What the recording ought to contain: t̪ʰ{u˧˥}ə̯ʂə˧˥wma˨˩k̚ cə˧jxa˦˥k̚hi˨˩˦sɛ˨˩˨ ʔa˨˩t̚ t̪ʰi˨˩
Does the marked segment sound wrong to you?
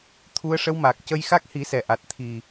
no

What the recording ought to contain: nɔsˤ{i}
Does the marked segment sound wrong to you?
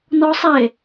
yes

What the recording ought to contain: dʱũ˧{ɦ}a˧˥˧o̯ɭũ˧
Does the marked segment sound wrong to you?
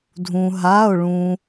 no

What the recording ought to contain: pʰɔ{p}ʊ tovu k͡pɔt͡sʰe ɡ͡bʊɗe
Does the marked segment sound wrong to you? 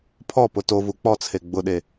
no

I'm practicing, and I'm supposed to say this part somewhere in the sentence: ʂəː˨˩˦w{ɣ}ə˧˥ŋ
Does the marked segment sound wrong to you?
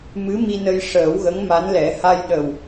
no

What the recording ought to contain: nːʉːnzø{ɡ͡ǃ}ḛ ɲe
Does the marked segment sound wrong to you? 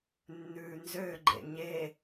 no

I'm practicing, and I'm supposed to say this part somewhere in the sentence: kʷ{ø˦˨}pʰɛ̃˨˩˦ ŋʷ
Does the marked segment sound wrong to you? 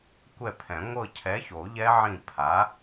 yes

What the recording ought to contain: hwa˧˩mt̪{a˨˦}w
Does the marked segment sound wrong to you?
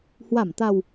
yes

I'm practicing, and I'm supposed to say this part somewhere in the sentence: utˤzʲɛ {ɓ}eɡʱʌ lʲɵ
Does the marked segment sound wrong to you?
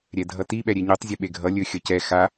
no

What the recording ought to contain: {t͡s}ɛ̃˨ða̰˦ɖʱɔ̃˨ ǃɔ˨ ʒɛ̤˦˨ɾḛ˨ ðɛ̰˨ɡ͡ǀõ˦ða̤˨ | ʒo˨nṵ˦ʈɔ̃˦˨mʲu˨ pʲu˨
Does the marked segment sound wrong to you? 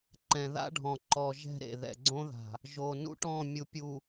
yes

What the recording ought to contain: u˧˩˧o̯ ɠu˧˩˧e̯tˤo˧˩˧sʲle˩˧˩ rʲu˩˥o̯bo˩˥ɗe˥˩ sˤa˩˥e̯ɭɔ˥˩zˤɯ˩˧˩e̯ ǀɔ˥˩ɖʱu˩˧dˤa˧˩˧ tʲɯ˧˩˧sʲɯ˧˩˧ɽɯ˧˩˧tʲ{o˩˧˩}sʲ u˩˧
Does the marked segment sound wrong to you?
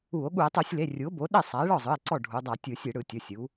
no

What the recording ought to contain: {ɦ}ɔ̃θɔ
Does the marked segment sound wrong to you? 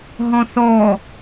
no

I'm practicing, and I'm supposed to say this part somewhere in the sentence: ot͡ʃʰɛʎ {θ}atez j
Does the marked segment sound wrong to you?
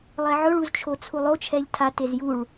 yes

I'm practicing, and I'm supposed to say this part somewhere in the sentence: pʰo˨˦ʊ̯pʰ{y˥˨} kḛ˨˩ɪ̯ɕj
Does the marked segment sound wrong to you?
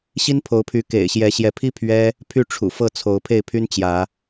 yes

